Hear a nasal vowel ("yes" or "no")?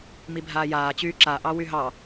no